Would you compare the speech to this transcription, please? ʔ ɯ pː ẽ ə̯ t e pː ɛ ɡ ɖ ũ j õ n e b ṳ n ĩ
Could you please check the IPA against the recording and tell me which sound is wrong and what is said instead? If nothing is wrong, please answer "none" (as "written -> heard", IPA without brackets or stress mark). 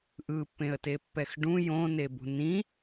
ɡ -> x